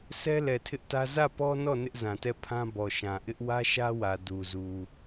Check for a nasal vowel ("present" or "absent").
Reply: present